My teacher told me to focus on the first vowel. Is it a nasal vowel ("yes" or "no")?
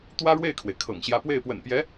no